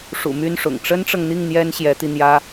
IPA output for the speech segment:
ʂṵ˨˩my˥˩nʂʊ̰˨˩ŋ ʈ͡ʂə˥nʈ͡ʂɤ˨ŋn̪i˥˩ŋ n̪jɛ˥nɕjɛ˧˥t̪i˧n̪jä˥

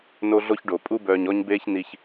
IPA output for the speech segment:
no˦ɮo˦çɖo˨ pʼu˧bœː˨ɲɔ˧ɲbeː˧ç ni˧ç

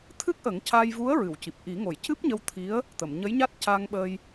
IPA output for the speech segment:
t̪ʰɨ˦˥k̚ʔə˨˩˦ŋca˧jvu˧˥ə̯ ɹɨ˨˩˨wci˨˩p̚ʔi˨˩˦ ŋo˨˩˨jcɨ˦˥p̚ɲə˧wt̪ʰi˧˥ə̯ | t̪ə˨˩˨mɲə˧˥jɲa˦˥t̚ ca˧ŋɓə˧j

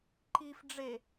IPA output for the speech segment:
ǃif ɖ͡ʐe

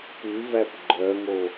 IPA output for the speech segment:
pʉvæp ɡ͡ǃœŋo

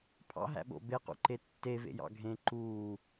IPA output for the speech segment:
pʰɑ̰ɦæ̰ɓo̰ beqṵǃe tːevḛjɑ̰ ɡʱẽ ǃuː

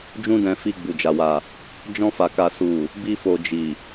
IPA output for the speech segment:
d͡ʒũ˦dɛ̃˧fi˧ ɡ͡bu˨d͡ʒa˨wa˨ | d͡ʒɔ̃˧ fa˨ka˨su˨ | bi˧fo˨ d͡ʒi˨

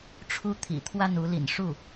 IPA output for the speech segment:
ʈ͡ʂʰu˥t̪ʰḭ˨˩ t̪ʰwa˥˩n u˧˥lḭ˨˩n ʂu˥˩

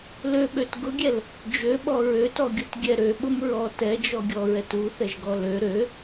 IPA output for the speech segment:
løɓøt ɡʊɡʲɛl | d͡ʒøɓɔ ɹøtɔɡʲʊtɡʲɛ ɾøɓʊm ɹɔ tɛd͡ʒɔɡʲɔɹɛt uθɛʒɡɔ lø ɾø

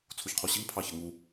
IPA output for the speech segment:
t͡sʰuçqʰoɕiŋ pʰɑçɐŋu

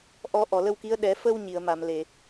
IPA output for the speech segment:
ʔɔ˨˩˦ ʔɔ˨˩˨lə˧wki˧˥ə̯ ɗɛ˨˩˦ fə˧w ɲi˨˩˨ə̯ma˨˩˨mle˨˩˨

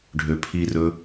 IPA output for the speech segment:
ɖʱøpʰirɵ

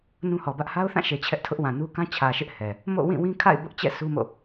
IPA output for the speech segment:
nũ˦hɔ˨bä˦ʔ ha˦ʊ̯θã˦˨ʃe˨ t͡ɕʰɛ˦ʔtʰʊ˦ʔwã˨nu˦ kã˦t͡ɕʰä˨ʃɪ˦ʔ hɛ˨ | mo̰˦˨wĩ˦˨ wĩ˦kʰa̰˦˨ɪ̯ bʊ˦ʔt͡ɕɛ̰˦˨ su˦mo̰˦˨

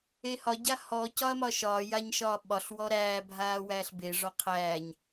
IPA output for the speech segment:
ehɒ ɟahɔ cɒɐ̯mɒʃɒː jaɲʃɒːɓɒɬ wɔɾæː bʱaːwæːɬbe ʐɒqʰæːɲ

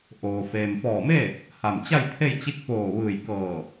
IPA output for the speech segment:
ʔoː˩ feː˩mfɔː˧˩me˥˨ | ha˧˩mt͡ɕa˥˨jt̪ʰe˥˨jt͡ɕi˧˥k̚ poː˧˩ʋɯː˧˩jkɤː˧˩

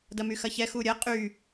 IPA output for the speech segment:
dɐmyxɐçɛ xuɾʲɐ qʼy

